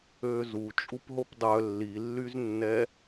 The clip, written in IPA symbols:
øːzu t͡ʃʼupɦopdˤœ lːilːyznːɛ

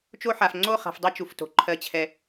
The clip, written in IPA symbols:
t͡ʃo˦ħa˨f ŋ͡ǀo˦˨χa̤˨f dˤɛ˦t͡ʃu˨fto̤˨ ǃʰɜ˦t͡ɕʰɛ˦

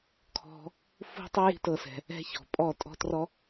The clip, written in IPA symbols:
kʰɔ̤˧ | fṳ˦tˤu˦ ji̤˦tɤ˧sɛ̤˨ | ɛ̤˦çɔ̤˨pʼɔ˦˨ tʼɔ̤˦trɔ˦

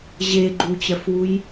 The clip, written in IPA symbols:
ʑeɡ͡ǃut͡ɕɜfwuj

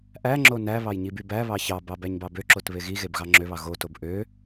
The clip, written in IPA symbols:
ʔæŋ͡ǁo næβɑj ɲibybæβɑ çɑbɑ bæɲbɑbøǁot βeɣiɣeb ɣɑŋ͡ǁøβɑ ɣotob ʔø

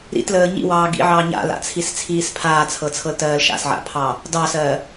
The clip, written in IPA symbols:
ɾḭtləː ɲḭwɑː ɡḭʕɑː ɲa̰la̰t͡sʰist͡sʰiːs pʰaːt͡sʰɤt͡sʰɤltɜːl ʃa̰sʕa̰pʰɑ | dɑsɜː

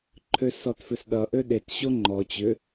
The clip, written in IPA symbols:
ǃʰøsɔtfʏsɗʌ ʔøɗet ɕoŋ͡ǃɔ t͡ɕʏ

